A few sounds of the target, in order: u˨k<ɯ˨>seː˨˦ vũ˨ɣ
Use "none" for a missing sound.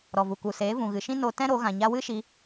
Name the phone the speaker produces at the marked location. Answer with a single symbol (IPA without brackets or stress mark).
u˨